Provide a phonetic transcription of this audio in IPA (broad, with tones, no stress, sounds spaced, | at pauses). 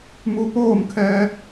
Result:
m u˧˥ p oː˥˨ m kʰ ɛː˧